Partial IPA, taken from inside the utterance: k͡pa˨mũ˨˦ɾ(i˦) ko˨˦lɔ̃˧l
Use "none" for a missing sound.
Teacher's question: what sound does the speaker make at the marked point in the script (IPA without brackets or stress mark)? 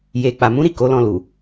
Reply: i˦˨